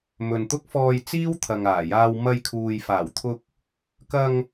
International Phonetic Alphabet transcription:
m ɵ˨ n t̪ ʊ˥ k̚ f ɔː˧ j t͡s iː˥ w t̪ʰ ɐ˨ ŋ aː˨˩ j aː˧ w m ɐ˧ j kʰ uː˨ j f aː˨˩ w t̪ʰ ʊ˧ k̚ | k ɐ˧ ŋ

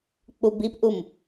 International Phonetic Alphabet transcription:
k͡p u b i p ʔ u m

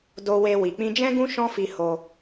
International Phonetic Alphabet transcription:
d o˧ w e˧ w i˨ k͡p ĩ˧ d͡ʒ ɛ̃˦ ɡ ũ˦ ʃ ɔ̃˦ f i˧ h o˧

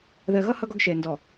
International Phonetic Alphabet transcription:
ð ɜ˨ ɣ ʌ˦ h ʌ˦ ɡ ɒ˦ ɡ ʃ ɛ˨ n d ɔ˨

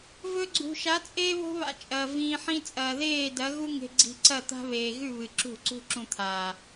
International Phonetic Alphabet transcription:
v ɵ˧ ɡ͡ǀ ṳ˨ ʃ a˨˦ t͡sʼ eː˦ β o̤˦ β a̰˧ t͡ʃʼ ɐː˨ v ĩː˧ ħ ĩ˦ t͡sʼ ɐː˨ ð eː˦˨ d ɐ˨˦ ɣ u˦ ŋ e̤˧ ɡ͡ǀ i̤˧ ǀ ɐ˦˨ t̪ a̤˦ β eː˨ ɣ ʉ˦˨ β ɨ˨ ǁ ṳ˦˨ ǀ ṳ˦ ǁ ũ˧ t̪ʰ aː˨

